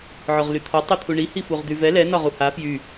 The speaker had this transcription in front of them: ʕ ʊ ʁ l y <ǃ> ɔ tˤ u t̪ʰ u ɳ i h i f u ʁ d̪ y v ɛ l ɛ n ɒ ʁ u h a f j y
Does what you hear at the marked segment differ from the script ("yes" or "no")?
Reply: yes